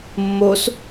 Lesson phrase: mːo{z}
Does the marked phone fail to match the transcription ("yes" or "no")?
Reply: yes